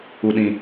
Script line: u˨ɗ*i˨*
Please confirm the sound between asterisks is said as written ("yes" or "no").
no